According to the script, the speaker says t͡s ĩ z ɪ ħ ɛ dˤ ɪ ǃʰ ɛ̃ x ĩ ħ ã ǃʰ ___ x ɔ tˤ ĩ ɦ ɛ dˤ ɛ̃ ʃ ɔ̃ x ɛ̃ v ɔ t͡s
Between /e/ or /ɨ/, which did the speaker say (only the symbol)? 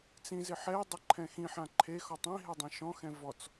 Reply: e